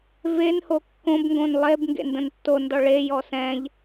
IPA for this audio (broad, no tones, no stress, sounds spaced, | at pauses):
v e n h o kː õ b ŋ ɡ õ n lˠ e b ŋ ɡ ḛ n d ə̃ n tː o n d ɔ ɭ e j ɔ s ɛ̃ ʎ